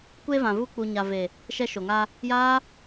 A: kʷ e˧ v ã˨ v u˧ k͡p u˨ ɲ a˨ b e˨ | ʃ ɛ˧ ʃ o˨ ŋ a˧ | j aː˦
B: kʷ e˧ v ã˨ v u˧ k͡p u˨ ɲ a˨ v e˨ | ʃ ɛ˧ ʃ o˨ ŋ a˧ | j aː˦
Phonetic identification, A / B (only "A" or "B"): B